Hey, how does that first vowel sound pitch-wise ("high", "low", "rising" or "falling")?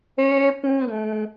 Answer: high